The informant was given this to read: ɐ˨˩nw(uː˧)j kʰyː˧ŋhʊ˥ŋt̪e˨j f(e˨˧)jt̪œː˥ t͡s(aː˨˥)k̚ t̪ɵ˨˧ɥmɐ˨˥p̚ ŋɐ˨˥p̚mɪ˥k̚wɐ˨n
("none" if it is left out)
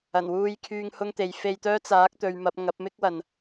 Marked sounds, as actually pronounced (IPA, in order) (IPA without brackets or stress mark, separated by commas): uː˧, e˧, aː˨˥